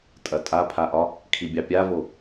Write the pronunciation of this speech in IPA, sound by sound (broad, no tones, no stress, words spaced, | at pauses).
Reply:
tʼɐtʼapʰaʔɒ | kʰibʲɑpʲavo